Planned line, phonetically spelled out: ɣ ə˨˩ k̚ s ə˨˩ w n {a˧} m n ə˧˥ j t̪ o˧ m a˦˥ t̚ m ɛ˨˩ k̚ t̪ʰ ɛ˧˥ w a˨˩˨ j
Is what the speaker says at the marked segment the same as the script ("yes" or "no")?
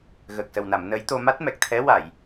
no